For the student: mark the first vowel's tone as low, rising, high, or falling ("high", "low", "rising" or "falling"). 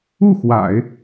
falling